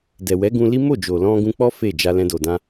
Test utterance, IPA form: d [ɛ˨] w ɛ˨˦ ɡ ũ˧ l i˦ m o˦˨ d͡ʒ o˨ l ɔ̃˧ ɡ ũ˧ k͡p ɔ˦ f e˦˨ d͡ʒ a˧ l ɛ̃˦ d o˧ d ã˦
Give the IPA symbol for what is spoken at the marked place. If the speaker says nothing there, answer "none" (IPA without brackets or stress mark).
ɛ˨